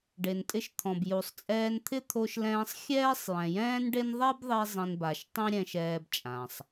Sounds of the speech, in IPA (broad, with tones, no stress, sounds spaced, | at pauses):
ɖ e˩ n tʼ ɪ˧ ʃ t̪ʰ ɔ̃˩ b j u˩ sˤ t͡sʼ ɛː˧ n t̪ʰ ɪ˥ t̪ʰ o˧ ʃ l ɛ̃ː˧ sˤ xʲ ɛː˥ sˤ j ɛ̃˩ j ɛ̃ː˥ n ɖ e˥ n ðˤ ɛ˥ b ðˤ i˧ zˤ ĩ˧ n b a˩ ʃ tˤ ĩ˥ ɾʲ ɛ̃˧ ʃ ɛː˧ b t͡ʃʼ ã˩ sˤ